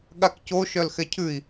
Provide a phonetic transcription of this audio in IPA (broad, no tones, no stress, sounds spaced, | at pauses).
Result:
ɠ a k c o ʃ œ l x ɛ cʰ ʉ i̯